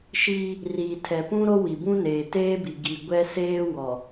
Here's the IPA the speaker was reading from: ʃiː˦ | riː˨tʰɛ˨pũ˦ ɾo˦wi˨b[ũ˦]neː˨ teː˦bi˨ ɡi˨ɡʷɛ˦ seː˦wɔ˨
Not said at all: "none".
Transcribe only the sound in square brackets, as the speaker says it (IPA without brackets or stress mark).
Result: ũ˦